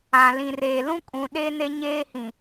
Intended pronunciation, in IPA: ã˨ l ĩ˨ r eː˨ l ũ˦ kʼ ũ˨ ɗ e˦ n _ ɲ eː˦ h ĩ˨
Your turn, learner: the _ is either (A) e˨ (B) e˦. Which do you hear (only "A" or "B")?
B